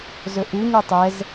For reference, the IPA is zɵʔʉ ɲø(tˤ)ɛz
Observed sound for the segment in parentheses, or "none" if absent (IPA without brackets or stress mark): tˤ